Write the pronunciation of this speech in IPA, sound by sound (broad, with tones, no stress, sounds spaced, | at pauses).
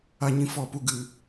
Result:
a˧ ɲ ĩ˧ f ɔ˦˨ p u˦ ɡ ɨ˨